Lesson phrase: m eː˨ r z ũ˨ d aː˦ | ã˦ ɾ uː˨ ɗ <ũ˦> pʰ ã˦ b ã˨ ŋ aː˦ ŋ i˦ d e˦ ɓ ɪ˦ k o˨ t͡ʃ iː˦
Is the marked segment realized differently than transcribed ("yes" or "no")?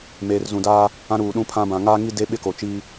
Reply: no